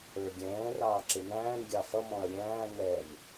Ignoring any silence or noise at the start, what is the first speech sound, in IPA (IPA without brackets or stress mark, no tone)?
ə˞